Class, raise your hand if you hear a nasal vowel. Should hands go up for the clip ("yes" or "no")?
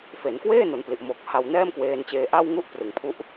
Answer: no